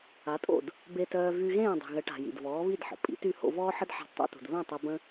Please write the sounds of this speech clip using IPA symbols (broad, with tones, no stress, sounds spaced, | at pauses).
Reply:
a˩˥ tʼ o̰˥˩ d | b e˧ t œː˧ v y˧ ɣ ẽː˥˩ dˤ i̤˩ ɣ ə˩˥ ʈ a̤˩ j ḭ˩ d v ɔː˩˥ β i˥˩ d ħ ə̰˩ pʼ ḭ˩˥ t y˥˩ h o̰˧ v ɔː˥ ħ ə˥ d ħ a̤˥ d tˤ o̰˥ t ṳ˩ d β ɛ̃˥˩ tˤ e˧ b ə̃˥